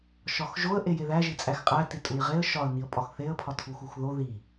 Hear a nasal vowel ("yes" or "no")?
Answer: no